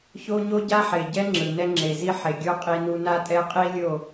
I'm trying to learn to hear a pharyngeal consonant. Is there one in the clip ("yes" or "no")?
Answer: yes